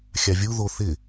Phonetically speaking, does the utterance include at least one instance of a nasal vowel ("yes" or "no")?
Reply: no